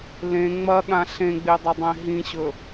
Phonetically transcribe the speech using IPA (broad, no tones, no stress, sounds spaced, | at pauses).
l ẽ ŋ͡m ɐ ɠ ã ɬ ẽ ɡ͡b e dˤ ɐ dˤ ẽ ɦ ĩ ɕ ɵ